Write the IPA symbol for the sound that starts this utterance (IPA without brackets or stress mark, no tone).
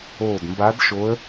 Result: oː